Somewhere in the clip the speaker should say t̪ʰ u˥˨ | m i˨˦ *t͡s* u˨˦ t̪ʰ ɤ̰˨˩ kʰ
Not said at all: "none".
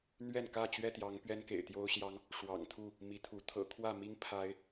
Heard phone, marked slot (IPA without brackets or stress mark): t̪ʰ